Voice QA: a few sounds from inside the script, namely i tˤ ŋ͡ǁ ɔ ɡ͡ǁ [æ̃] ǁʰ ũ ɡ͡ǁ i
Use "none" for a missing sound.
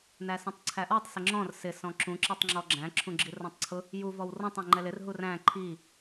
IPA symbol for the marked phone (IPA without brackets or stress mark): æ̃